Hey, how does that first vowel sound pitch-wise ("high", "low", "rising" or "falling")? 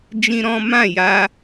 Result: high